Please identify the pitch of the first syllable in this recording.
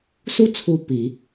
high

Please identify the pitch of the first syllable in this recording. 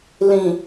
low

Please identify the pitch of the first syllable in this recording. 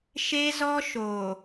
high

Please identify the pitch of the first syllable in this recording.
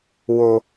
low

